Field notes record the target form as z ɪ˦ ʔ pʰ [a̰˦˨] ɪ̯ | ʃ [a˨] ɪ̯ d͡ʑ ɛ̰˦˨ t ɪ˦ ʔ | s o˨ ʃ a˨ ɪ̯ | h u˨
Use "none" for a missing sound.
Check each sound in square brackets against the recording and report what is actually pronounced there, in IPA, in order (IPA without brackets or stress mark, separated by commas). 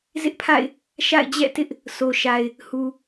a̰˦˨, a̰˦˨